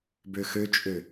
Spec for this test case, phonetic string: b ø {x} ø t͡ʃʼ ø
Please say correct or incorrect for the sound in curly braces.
correct